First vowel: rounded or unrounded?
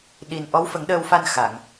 unrounded